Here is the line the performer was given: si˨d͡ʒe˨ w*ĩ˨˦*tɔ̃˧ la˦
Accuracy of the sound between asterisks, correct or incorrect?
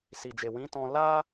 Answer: correct